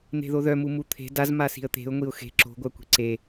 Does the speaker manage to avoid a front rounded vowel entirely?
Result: no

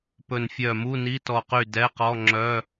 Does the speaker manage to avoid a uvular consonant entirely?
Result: no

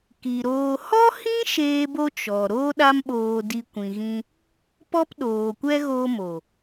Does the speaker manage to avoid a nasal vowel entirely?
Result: no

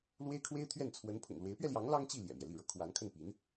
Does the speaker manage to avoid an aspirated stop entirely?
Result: no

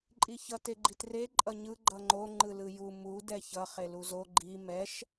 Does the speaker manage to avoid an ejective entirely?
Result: no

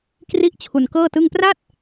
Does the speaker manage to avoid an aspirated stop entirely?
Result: no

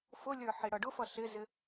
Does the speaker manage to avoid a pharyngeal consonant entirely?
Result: no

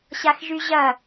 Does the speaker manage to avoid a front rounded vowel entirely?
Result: no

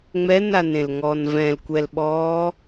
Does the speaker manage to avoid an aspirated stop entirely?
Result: yes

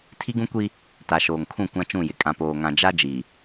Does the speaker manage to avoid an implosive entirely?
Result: yes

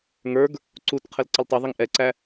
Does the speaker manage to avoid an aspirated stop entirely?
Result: no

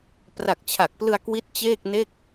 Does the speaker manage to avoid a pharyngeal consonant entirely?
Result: yes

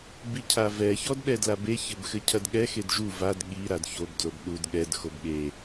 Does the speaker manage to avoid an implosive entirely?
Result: no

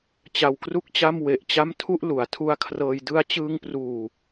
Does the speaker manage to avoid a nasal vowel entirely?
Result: yes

